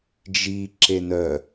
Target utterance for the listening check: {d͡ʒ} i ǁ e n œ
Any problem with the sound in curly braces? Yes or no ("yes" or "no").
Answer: no